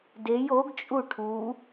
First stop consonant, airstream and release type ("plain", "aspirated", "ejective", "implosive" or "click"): plain